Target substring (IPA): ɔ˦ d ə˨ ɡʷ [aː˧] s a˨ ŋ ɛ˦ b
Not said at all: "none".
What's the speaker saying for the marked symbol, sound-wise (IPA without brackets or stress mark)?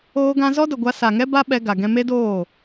a˧